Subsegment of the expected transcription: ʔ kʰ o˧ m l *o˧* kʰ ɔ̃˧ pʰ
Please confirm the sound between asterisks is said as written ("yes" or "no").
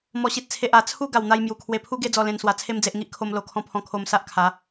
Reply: yes